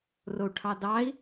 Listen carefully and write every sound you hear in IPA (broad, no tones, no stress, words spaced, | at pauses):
rou̯ʈʰɑdɑi̯